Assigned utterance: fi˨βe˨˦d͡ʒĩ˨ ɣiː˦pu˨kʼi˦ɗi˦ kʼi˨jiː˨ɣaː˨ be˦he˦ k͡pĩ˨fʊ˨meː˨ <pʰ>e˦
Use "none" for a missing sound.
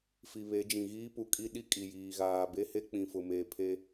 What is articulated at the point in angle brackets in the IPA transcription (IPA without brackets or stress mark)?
pʰ